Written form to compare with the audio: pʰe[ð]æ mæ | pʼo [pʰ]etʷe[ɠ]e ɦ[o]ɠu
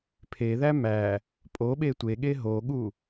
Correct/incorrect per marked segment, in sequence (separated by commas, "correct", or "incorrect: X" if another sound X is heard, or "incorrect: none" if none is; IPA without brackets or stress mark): correct, incorrect: ɓ, correct, correct